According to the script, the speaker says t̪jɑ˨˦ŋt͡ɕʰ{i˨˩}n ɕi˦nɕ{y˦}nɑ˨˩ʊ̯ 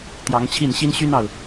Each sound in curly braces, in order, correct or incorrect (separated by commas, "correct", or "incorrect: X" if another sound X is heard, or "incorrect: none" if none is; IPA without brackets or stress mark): incorrect: i˥˨, correct